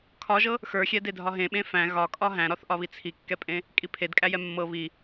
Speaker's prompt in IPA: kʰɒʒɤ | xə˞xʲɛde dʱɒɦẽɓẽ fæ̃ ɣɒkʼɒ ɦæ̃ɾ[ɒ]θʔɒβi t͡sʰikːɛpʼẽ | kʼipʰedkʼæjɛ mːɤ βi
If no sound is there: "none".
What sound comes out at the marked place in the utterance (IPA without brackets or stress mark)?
ɒ